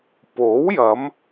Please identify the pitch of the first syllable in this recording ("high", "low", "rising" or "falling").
rising